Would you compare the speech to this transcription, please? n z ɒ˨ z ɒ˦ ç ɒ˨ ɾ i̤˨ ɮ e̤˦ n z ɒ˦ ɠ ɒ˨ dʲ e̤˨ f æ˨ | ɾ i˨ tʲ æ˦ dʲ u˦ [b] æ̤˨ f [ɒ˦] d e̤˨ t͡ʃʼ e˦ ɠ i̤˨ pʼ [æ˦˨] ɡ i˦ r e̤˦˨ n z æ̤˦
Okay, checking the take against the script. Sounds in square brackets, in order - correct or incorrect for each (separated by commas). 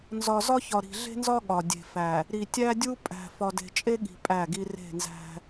incorrect, incorrect, correct